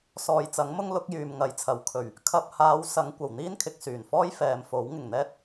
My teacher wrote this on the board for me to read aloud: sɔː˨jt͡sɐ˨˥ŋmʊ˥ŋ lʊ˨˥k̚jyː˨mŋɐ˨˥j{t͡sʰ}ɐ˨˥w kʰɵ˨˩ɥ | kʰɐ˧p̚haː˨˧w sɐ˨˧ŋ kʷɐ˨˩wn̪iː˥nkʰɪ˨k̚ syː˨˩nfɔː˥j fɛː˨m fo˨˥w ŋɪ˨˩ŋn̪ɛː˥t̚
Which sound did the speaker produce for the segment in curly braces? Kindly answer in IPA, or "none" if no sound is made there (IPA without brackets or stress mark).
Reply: t͡sʰ